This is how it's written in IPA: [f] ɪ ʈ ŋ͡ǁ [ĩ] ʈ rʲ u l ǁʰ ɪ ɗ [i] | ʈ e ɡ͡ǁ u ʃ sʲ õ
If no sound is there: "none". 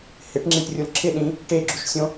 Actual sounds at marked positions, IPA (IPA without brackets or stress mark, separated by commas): h, ĩ, ĩ